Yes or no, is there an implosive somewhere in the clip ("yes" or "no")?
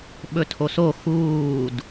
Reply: yes